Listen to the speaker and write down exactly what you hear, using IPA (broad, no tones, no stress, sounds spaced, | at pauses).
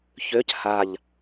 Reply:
ç ø c h a ʎ